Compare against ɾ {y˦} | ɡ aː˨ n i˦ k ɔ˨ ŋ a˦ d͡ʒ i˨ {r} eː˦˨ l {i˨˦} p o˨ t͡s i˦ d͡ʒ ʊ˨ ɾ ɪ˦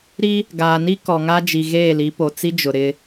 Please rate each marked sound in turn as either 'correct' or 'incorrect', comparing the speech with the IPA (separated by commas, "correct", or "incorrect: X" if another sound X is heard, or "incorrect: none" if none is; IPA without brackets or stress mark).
incorrect: i˦, incorrect: ɣ, correct